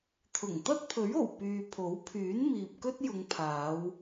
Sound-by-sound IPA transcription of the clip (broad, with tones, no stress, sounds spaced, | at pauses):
t̪ʰ ʊ˨˩ ŋ t̪ ɐ˥ t̚ pʰ ɵ˨˥ ɥ o˨˩ w p yː˨ pʰ o˨˥ w pʰ yː˨˥ n m iː˨ p̚ k ɵ˥ t̚ j ʊ˨˧ ŋ pʰ aː˨˧ w